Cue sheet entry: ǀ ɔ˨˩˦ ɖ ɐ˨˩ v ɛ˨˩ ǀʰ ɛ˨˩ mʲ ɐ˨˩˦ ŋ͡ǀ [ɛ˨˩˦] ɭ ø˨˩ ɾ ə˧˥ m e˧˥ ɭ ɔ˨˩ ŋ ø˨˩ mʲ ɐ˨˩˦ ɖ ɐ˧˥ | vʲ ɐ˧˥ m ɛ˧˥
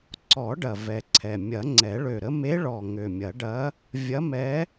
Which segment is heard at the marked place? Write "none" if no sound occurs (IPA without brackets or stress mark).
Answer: ɛ˨˩˦